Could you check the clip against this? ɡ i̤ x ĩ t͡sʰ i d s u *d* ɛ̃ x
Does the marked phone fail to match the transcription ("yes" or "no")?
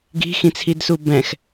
yes